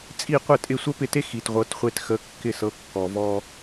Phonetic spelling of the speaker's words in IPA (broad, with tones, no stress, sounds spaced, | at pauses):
t͡sʼ i˥˩ qʷ ə˥˩ tʼ ɪ˥˩ sʷ ə˥ p ɪ˥˩ t e˥ x i˩ t ʁʷ ɤ˩˥ t χʷ e˧ t x ə˩˥ kː ɪ˧ s ɤ˩˥ kː ɔ˩ v ɔ˧